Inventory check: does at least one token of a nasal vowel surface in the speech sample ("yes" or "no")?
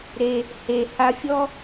no